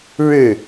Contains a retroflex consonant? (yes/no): yes